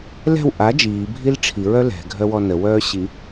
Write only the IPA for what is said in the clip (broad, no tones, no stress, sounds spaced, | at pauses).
l ɛ̤ w ʔ a d͡ʒ iː bʱ i l ʈ͡ʂʰ i ɹ œ l ɛ̤ ɡʱ œ w ɔ n ə w œː ɕ i